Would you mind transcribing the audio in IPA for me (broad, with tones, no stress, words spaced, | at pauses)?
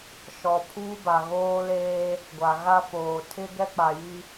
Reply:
ʃɔ˨pʰuː˦ba˨ɣoː˦ leː˦ | ɡʷa˨ɣa˦foː˨ tʰɪ˦ ɡɛ˦k͡pa˨ji˦